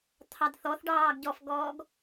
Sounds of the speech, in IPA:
t̪ʰ ɑ d θ ɔ θ ɖ ɑː ɡ ɟ ɔ f ɡ ɔː ɡ

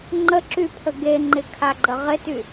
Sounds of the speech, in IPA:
ŋ͡ǃ ə ǁ y pʰ ə ɡ e ŋ͡ǃ ɪ kʰ a ɡ͡ǃ ə ʁ ɪ t y

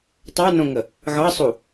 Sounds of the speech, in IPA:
tˤ ɑ n õ ŋ ə | ɣ ɑ sˤ u

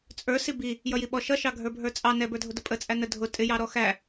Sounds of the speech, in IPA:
t͡sʼ ə˞ s i b i | j ʌ j i ɓ ɔ ʃ ʌ ʃ ɑ ɡʱ ə˞ bʱ ə˞ t͡sʼ ɑ n ɛ b ə˞ dʱ ʊ d ə pʼ ə t͡sʼ æ n ə dʱ ʊ tʼ ɪ j ɑ ɾ ɔ x æ

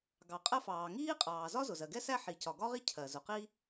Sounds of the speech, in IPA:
ɡ ɑ˩ qʼ ɜ˥ f ɑː˩ ŋ iː˥ qʼ ɑː˩ z ɒ˥ z ʊ˩ z ɜ˩ ɡ ɛ˥ s æ˥ ħ i˩ c ɒ˩ ɡ ɒ˥ ʁ i˥ cʰ ɜ˩ z ʊ˩ q i˥

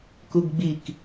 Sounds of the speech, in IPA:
k u ɡ ɡ͡b i k

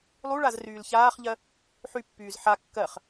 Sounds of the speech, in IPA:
lˠ u ɭ a z r yː l ç aː χ ʎ ɜ | ħ y pː yː z ħ a kː ɜ χ

